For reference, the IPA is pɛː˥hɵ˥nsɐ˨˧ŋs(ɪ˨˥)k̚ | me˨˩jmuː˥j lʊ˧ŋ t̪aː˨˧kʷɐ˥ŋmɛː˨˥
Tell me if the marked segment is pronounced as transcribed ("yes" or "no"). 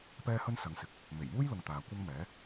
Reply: yes